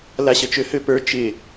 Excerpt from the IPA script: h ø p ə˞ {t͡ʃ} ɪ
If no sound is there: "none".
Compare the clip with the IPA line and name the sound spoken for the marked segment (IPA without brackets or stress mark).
t͡ʃ